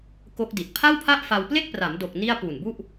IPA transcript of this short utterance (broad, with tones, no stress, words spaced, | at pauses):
ko˦˥k̚di˨˩t̚ pʰa˥˩wpʰa˥˩ʔfa˧w ple˥˩k̚pra˩˦mdo˨˩k̚ ni˥˩a̯ pu˨˩nbu˥˩ʔ